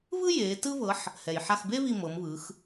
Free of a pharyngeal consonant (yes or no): no